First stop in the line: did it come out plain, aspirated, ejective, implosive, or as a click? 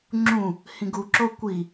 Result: click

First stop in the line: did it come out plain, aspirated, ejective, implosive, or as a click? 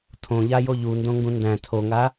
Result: aspirated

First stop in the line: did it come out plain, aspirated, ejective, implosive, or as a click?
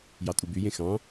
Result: ejective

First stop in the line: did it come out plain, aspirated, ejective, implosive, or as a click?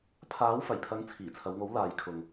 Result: aspirated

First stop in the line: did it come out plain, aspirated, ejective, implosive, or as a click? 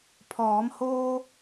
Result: aspirated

